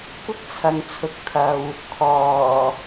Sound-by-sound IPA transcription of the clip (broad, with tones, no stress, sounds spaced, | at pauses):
kʷ ɪ˥ k̚ t͡sʰ ɐ˨ ŋ t͡sʰ ʊ˨ k̚ t̪ʰ ɐ˧ w | kʰ ɔː˨˩